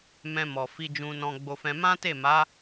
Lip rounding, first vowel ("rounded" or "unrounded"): unrounded